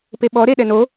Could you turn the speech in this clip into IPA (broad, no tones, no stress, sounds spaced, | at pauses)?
p e ɓ ɔ ɾ e ɗ ɛ n o